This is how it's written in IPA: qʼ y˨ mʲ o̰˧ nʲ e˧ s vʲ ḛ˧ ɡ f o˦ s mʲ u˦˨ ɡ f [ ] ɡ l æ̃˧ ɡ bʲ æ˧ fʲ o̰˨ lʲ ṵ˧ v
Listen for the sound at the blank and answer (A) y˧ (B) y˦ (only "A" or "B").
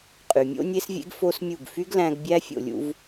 B